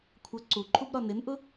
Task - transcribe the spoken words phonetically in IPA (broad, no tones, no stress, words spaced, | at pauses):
kʷʰʌ ǀuǃʰub ɾɒnɪnʔʊ